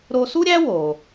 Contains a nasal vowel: no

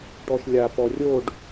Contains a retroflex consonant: yes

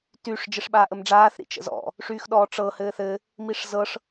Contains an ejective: no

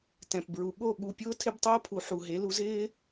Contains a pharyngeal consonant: yes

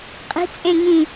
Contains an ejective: yes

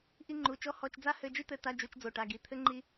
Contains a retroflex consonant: yes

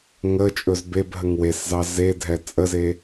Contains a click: no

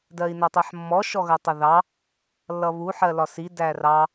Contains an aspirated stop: no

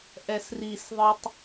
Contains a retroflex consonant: no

